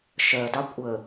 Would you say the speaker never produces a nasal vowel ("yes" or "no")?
yes